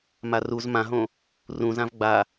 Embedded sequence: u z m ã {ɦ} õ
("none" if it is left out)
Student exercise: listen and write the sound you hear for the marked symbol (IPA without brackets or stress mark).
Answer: ɦ